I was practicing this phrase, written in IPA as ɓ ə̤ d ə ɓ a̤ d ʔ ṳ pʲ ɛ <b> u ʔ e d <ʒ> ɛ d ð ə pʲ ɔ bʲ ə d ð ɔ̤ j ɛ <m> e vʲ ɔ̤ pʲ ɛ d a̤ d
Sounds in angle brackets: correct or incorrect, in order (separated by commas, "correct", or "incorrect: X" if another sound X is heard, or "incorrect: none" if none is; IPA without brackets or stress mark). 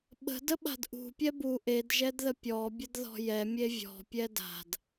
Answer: correct, correct, incorrect: mʲ